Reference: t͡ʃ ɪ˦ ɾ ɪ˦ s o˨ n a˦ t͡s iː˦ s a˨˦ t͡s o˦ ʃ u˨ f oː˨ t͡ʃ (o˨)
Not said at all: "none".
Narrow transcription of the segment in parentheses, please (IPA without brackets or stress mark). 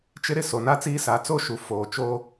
o˦